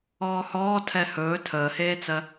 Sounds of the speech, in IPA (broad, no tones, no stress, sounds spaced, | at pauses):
ɔː h ɔː tʰ ɛ h ɵː tʰ əː h eː t͡s ɜ